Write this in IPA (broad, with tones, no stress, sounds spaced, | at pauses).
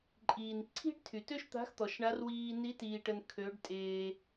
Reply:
ǃʼ iː˩ n ǀʰ i̤˥ ɖ tʰ y˩ t ø˥ ʃ t̪ a̤˧˥ x t̪ ɔ˩ ʃ ɳ a˧˥ r w iː˧ n i˧˥ t iː˩ ʈ ə˩ n kʰ ø˩˧ ɖ tʼ eː˩